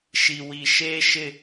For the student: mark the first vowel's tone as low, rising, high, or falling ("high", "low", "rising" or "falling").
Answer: low